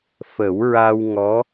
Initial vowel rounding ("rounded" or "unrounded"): unrounded